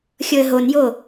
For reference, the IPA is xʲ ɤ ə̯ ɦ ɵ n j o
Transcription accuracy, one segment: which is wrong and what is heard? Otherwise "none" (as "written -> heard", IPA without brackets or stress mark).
ɵ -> o